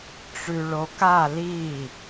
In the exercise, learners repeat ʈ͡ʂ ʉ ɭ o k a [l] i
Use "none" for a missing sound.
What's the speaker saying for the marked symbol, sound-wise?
l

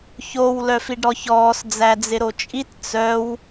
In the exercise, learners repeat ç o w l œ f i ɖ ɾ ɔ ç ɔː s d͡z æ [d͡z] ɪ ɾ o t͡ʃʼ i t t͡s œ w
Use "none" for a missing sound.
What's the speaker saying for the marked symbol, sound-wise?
d͡z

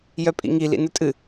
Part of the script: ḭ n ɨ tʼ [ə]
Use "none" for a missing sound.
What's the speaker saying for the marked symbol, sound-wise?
ɨ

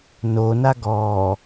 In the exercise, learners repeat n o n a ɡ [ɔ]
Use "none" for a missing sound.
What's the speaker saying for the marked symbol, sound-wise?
ɔː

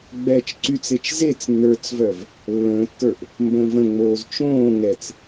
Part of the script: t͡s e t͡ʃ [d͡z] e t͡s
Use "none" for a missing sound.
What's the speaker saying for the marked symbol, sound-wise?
z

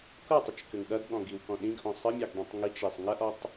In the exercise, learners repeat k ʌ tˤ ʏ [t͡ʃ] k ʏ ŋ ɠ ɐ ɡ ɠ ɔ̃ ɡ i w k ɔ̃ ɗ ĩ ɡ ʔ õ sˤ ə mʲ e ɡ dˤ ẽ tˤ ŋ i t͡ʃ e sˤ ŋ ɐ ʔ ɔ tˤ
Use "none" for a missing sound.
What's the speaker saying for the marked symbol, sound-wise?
t͡ʃ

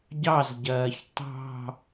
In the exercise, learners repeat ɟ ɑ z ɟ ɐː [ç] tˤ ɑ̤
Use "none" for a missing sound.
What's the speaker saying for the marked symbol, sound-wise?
ç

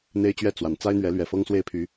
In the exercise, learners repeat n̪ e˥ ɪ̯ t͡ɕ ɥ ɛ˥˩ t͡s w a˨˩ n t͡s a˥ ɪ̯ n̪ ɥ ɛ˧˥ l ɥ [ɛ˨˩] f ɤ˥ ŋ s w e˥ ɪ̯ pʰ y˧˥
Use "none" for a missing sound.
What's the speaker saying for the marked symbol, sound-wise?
ɛ˨˩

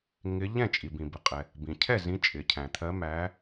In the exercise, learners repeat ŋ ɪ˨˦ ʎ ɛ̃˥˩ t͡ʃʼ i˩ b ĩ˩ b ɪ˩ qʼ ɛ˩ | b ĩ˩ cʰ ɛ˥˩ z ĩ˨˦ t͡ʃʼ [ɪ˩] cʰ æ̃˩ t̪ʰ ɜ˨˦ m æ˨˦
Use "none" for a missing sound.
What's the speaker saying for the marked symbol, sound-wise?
ɪ˩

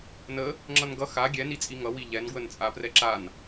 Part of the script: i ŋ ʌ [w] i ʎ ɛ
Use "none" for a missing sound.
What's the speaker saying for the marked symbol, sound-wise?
w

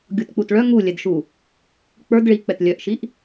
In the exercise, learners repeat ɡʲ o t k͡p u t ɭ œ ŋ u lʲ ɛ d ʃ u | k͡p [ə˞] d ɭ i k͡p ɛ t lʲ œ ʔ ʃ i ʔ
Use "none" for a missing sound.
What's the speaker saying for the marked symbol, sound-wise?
ə˞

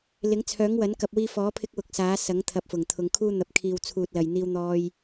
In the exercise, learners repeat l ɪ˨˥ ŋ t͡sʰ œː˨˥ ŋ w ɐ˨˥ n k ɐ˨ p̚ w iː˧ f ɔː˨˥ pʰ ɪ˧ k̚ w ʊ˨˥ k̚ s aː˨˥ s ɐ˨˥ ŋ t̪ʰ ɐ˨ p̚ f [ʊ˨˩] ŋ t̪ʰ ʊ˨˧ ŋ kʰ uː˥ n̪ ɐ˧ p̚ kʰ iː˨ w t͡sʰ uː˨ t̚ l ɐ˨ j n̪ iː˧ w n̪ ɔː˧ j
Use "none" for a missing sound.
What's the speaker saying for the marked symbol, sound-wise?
ʊ˨˩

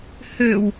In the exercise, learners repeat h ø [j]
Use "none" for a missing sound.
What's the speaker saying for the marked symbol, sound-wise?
w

